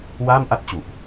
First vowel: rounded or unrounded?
unrounded